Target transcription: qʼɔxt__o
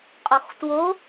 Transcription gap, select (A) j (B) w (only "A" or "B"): B